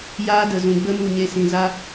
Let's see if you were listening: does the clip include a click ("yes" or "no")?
no